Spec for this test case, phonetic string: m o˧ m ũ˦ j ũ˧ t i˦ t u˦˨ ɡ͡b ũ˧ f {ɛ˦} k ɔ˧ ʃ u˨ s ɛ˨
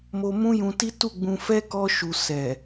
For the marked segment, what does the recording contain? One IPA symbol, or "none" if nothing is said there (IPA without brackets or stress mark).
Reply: ɛ˦